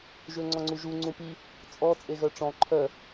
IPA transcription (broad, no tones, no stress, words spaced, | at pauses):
ʒøŋ͡ǀɔ̃ŋ͡ǀuʒu ŋ͡ǀũpi | t͡sʼɔ t͡sʼeɣœʈ͡ʂɔ̃ ǃʰœ